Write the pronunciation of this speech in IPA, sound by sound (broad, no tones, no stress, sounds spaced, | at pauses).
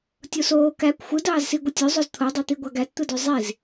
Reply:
tʲ o s oː k æ kʷ xʷ ɯ d ɑː z s i ɡʷ ɯ tʲ ø zˤ o z t̪ʰ o dˤ ɑ t̪ i ɡʷ ɑ ɡ æ t t̪ ɯ d ø zˤ i z